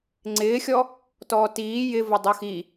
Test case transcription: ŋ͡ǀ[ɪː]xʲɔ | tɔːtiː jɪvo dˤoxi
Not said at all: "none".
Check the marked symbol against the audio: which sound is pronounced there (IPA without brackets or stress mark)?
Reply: ɪː